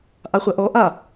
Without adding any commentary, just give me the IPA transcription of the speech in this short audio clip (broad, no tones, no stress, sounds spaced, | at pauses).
ʔ a χʷ ɐ ʔ ɔ ʔ a